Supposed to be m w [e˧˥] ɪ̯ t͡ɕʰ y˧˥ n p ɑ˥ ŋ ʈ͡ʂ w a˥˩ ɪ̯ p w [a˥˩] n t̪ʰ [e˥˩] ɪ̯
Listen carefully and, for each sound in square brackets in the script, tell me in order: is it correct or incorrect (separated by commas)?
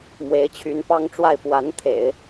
correct, incorrect, incorrect